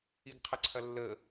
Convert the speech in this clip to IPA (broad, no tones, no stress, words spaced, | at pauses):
iɡqʰəǀʰɐlːə